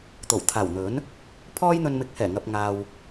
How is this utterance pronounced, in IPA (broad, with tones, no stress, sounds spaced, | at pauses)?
t̪ o˨˩ w t̪ʰ aː˨˩ w n̪ ɵ˨˥ n | pʰ ɔː˥ j n̪ ɵ˧ n m ɪ˨˥ k̚ h ɛː˨˩ ŋ ɐ˧ p̚ ŋ aː˧ w